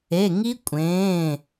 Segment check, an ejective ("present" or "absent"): present